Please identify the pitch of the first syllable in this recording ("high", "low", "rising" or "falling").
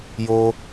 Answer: high